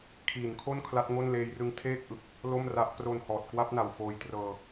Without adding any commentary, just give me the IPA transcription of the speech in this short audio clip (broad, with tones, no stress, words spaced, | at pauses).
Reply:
kʰiː˩˦nkʰo˥˩n kʰla˦˥t̚ŋo˥˩nleː˦˥jrɯ˦˥ŋ tʰeː˥˩k̚ʔɯ˨˩k̚ | lo˥˩mra˦˥ʔ kro˧nhɔː˨˩t̚kwa˦˥p̚na˨˩w foː˧jtrɤː˧